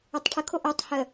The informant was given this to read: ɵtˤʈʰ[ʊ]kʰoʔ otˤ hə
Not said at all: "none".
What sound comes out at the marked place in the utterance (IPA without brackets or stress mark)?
ə